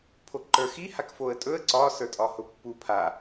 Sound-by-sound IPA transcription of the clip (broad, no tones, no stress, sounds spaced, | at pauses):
pʰ o ǃ ə˞ x i h a k f o ə̯ tʼ ɵ ə̯ ǀ ɒ s ə˞ tʼ ɒ h ʊ pː u pʰ a